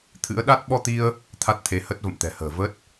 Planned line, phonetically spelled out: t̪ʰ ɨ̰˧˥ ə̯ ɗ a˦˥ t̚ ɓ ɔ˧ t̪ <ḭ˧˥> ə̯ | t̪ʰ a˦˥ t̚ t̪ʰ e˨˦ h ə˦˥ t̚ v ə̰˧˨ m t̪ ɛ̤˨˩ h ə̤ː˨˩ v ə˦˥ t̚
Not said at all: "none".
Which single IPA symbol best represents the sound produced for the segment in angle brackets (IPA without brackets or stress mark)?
i˧